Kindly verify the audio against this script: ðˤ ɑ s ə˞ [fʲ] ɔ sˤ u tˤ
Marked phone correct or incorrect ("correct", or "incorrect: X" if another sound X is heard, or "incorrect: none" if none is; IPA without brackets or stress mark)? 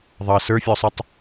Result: correct